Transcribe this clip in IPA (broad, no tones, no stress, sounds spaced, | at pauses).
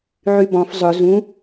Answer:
ʕ y b ɔ̃ f zˤ ʊ z ũ